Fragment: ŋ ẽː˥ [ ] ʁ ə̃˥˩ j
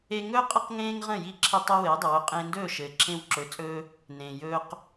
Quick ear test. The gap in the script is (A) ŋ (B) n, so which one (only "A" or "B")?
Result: A